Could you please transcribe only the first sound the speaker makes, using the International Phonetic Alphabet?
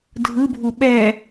dʱ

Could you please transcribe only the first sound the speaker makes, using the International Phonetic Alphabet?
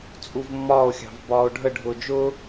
t͡sʼ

